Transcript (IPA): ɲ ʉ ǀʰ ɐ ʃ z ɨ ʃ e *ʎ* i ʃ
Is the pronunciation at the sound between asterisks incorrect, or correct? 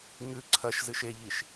correct